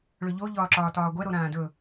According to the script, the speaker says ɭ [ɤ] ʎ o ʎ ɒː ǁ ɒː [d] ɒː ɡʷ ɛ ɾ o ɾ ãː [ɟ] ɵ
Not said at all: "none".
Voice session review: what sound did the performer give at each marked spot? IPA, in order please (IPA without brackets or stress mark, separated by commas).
ɵ, t, d